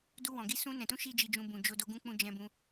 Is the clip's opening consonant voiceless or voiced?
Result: voiced